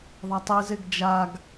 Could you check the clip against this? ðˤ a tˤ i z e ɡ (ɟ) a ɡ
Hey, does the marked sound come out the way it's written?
no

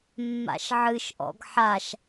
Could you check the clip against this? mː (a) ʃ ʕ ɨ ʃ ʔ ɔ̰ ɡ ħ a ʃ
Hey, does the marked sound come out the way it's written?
no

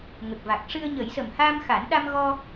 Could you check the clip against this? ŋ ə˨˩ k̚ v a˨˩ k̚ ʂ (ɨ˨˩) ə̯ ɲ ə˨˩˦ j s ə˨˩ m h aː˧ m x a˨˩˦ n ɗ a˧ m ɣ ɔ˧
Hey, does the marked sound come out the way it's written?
no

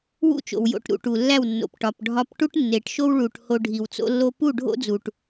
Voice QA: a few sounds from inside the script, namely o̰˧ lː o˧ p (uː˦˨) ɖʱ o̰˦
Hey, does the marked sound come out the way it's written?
no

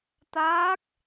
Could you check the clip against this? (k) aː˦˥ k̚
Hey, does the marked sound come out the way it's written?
no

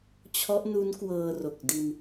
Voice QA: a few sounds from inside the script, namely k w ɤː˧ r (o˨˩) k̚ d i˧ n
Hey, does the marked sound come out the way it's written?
yes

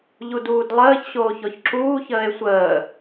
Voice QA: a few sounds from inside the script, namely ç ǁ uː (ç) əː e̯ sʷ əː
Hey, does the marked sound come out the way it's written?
yes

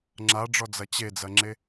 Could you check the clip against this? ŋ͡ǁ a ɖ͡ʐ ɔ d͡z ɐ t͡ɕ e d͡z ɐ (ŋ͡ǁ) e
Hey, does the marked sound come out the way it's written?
yes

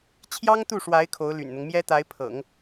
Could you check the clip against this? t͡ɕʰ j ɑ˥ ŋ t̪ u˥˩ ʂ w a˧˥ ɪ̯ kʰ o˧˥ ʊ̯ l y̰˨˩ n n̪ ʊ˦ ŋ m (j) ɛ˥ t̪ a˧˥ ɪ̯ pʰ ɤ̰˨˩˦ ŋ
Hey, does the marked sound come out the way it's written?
yes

